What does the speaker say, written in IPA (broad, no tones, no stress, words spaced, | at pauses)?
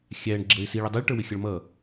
xʲæɳ ɡ͡ǁəːɪ̯siɭ ɛdˤɛɭʈə˞wɪ xʲʌɭmʌː